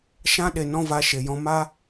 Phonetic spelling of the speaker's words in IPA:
ʃ ã˧ ɗ e˨ n ɔ̃˧ v a˨˦ ʃ e˨ j ɔ̃˧ m a˦

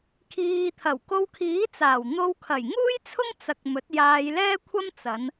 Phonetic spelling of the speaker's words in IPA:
kʰ iː˨ t̪ʰ ɐ˨˩ w k o˧ w kʰ iː˨˥ t͡s aː˨˩ w n̪ o˧ w kʰ ɐ˨˩ j ŋ uː˥ j t͡sʰ ʊ˥ ŋ t͡s ɐ˧ k̚ m ɵ˨˥ t̚ j aː˧ j l ɛː˥ kʷʰ ɐ˥ m t͡s ɐ˨˧ n

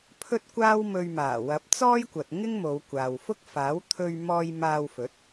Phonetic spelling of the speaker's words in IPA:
pʰ ɵ˥ t̚ kʷ aː˥ w m ɵ˧ ɥ m aː˨˩ w ɐ˨˥ p̚ t͡s ɔː˥ j kʷ ɐ˨ t̚ ŋ ɪ˥ ŋ m o˨˧ w kʷ aː˨ w f ʊ˥ k̚ f aː˨˥ w t̪ʰ ɵ˧ ɥ m ɔː˧ j m aː˧ w f ɵ˨˥ t̚

